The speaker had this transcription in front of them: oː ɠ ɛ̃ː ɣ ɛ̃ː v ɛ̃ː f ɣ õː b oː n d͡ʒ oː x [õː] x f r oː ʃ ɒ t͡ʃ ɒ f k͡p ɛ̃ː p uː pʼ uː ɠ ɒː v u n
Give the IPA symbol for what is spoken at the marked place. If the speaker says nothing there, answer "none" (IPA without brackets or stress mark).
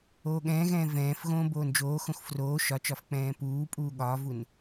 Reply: õ